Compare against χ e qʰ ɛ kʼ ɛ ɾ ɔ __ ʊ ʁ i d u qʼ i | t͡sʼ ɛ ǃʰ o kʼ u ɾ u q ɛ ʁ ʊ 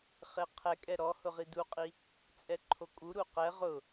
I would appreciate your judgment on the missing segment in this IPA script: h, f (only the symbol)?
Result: h